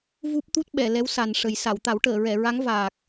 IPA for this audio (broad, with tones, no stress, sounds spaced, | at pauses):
v u˦˥ p̚ t̪ u˦˥ t̚ ɓ ɛ˨˩˨ l ɛ˧˥ w s a˨˩ n ʂ ə˨˩ j s a˨˩˨ w t̪ a˨˩˦ w ʈ əː˨˩˨ ɹ ɛ˨˩˨ ɹ a˧˥ ŋ v aː˨˩ k̚